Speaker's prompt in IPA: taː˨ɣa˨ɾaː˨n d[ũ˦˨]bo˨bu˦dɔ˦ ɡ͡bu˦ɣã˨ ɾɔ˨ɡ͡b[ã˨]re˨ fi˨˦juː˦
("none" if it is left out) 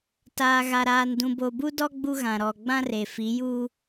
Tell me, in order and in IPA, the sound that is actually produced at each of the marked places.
ũ˨, ã˦

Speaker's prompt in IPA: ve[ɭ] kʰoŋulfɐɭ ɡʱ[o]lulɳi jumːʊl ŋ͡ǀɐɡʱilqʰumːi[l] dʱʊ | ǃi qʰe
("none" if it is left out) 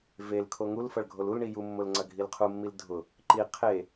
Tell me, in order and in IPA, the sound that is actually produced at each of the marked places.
l, o, l

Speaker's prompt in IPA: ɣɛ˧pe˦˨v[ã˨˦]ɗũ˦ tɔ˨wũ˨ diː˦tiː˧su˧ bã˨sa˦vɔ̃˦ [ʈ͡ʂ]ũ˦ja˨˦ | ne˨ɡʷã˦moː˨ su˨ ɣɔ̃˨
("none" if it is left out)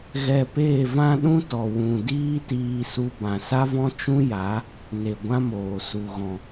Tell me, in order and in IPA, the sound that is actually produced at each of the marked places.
ã˦, t͡ʃ

